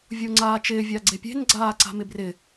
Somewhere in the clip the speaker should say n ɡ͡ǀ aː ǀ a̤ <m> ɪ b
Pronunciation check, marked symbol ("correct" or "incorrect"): correct